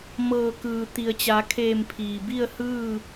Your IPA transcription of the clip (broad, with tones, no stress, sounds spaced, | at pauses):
m ɤː˧˩ k ɯː˩ t̪ i˩ ə̯ t͡ɕ a˩˧ kʰ eː˧˩ m pʰ iː˩ b i˥˨ ə̯ h ɯː˥˨